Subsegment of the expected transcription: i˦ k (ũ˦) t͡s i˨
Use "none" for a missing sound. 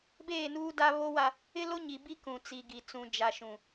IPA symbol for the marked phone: ũ˨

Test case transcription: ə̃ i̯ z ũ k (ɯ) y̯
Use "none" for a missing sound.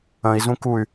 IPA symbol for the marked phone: u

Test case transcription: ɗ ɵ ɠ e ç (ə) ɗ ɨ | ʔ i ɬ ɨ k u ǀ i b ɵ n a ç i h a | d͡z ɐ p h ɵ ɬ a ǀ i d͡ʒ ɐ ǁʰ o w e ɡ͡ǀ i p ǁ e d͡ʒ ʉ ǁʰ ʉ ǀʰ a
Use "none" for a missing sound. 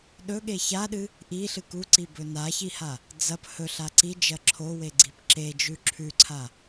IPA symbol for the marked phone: a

